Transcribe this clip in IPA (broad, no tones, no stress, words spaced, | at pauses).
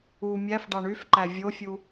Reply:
u mʲæfɖɑ ɳyfǃæ vʲofʲu